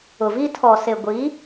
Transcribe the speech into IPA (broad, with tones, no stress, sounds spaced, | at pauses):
ʊ˨ v iː˦ tʰ ɔ˨ s e˨ ɡʷ i˨˦